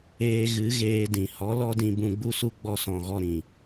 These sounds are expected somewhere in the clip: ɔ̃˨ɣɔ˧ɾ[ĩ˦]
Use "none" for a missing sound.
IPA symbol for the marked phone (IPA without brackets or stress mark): ĩ˨